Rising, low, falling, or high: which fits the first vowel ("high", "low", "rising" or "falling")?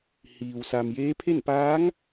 low